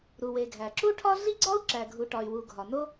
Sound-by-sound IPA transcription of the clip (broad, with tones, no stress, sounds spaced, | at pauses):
ɾ u˩ w e˩ ɡʱ æ˩ ǁ u˥ ʈʰ ɒ˥ ɮ i˥ ɡ͡ǀ ɒ˥ u̯ ǁ æ˩ ɡʱ u˩ ʈ ɒ˩ y̯ w u˩ ɡʱ ɒ˩ n o˥